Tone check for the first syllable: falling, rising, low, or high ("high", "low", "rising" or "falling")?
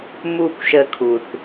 falling